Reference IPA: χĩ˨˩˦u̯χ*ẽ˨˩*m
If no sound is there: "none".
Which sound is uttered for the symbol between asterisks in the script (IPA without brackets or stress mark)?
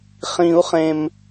ẽ˨˩